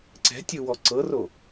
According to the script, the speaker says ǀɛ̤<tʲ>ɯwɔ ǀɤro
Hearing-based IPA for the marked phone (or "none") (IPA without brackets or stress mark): tʲ